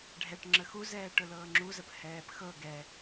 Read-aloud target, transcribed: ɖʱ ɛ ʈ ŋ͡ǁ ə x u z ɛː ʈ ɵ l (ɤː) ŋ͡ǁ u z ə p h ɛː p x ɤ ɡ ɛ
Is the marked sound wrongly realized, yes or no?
no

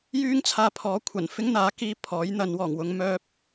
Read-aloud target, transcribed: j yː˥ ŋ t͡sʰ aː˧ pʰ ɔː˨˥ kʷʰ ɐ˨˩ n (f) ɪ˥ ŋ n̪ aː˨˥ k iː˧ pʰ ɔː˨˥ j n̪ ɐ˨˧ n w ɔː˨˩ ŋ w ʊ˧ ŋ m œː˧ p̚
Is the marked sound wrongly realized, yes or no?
no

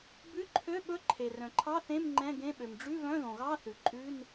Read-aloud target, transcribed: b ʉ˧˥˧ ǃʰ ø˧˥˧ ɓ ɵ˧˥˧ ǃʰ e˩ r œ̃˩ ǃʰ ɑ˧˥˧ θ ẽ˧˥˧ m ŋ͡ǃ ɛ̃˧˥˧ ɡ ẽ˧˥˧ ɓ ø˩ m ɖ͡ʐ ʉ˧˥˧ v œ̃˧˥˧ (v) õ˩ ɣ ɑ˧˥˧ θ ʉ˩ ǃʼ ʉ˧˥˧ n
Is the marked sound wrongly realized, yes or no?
yes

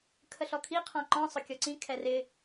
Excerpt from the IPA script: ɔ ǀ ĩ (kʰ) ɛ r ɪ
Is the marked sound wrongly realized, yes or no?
no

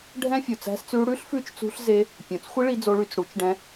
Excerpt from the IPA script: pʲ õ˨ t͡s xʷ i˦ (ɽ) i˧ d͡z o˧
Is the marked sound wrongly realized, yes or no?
yes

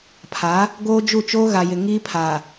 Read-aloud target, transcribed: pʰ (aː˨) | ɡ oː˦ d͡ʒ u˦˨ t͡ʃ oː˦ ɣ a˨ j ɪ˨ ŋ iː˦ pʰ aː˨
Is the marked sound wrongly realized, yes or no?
yes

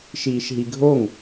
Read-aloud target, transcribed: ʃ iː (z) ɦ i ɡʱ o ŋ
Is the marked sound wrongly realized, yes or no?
yes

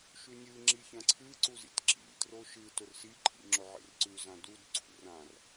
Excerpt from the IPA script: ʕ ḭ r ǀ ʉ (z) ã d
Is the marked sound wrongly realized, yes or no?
no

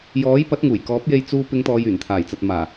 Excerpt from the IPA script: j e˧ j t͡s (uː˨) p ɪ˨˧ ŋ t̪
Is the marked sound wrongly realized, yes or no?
yes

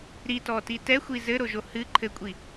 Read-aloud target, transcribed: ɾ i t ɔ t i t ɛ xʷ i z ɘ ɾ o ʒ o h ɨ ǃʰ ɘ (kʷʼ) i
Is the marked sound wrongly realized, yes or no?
no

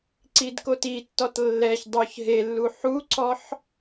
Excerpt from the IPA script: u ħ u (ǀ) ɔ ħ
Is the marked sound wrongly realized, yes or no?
no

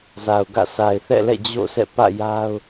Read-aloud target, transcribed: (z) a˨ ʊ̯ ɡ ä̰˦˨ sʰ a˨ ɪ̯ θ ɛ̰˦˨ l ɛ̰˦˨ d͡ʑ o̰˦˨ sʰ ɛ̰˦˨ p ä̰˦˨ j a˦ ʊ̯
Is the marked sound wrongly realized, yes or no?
no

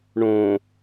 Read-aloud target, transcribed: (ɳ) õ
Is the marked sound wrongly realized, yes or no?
no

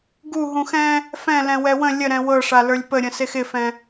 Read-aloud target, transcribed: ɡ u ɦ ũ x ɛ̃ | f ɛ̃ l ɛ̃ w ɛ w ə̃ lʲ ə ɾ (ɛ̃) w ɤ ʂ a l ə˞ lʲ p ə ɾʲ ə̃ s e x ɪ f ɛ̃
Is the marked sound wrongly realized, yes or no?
no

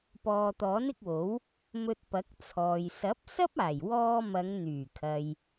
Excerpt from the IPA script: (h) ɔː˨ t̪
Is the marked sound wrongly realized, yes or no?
yes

